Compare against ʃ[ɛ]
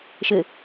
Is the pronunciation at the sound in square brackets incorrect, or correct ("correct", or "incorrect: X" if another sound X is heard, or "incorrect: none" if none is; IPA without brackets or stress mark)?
incorrect: ɘ